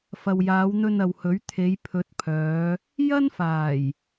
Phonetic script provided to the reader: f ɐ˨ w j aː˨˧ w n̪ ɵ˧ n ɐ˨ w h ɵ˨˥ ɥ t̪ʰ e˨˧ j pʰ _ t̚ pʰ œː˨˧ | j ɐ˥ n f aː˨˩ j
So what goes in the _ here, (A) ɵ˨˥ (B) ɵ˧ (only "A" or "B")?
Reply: A